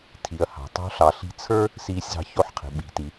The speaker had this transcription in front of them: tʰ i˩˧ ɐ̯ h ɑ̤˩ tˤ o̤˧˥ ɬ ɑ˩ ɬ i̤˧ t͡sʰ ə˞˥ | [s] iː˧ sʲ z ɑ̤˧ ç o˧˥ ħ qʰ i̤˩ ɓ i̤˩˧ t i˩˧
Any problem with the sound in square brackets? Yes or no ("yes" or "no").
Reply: no